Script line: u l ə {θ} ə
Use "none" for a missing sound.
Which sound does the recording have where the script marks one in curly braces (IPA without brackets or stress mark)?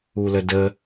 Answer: d